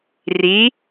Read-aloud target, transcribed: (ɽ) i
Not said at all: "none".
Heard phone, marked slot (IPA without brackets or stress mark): r